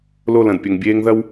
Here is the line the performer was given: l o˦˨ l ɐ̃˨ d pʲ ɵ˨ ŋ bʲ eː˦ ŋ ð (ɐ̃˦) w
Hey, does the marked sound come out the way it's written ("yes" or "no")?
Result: no